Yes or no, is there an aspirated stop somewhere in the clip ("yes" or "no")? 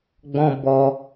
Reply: no